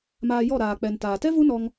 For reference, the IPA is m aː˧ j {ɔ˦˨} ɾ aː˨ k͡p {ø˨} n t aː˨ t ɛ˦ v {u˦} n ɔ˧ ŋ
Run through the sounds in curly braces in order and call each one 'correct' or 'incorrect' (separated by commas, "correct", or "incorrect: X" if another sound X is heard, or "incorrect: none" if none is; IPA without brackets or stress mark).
correct, incorrect: ɛ˨, correct